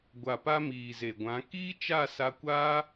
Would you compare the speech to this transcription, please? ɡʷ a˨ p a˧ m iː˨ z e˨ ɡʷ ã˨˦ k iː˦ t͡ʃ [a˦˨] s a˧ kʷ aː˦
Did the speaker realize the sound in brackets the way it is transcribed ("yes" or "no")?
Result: yes